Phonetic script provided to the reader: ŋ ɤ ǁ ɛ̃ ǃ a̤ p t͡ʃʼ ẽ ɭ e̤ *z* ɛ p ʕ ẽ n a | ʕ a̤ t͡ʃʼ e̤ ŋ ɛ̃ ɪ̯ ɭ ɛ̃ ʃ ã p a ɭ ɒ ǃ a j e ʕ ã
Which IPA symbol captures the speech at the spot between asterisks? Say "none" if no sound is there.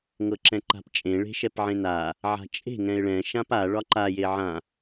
ʃ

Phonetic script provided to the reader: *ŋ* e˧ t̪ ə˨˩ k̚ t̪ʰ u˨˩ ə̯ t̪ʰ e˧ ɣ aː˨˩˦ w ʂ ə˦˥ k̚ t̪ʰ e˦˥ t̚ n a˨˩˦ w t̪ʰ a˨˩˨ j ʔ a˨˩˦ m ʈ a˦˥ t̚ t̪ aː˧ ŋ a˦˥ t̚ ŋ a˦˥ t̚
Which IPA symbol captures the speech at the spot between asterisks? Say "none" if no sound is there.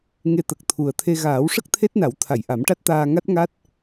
ŋ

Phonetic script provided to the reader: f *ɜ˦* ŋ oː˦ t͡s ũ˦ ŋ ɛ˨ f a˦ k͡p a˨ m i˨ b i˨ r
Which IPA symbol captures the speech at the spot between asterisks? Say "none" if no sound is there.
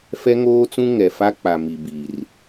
ɛ˦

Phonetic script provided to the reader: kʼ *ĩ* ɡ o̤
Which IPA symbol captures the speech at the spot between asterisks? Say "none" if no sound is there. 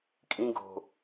ĩ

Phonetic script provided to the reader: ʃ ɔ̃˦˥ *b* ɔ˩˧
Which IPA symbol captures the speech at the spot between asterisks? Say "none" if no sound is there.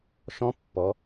pː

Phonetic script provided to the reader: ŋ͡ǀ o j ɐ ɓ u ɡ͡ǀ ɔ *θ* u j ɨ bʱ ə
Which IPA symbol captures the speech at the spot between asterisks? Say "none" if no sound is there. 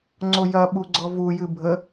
v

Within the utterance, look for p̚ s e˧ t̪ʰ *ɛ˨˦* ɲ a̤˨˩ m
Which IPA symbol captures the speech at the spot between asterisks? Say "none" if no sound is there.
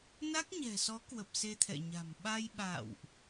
ɛ̰˧˨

